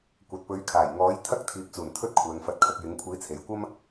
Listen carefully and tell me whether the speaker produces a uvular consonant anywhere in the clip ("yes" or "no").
no